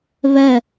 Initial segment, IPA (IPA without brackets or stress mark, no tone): β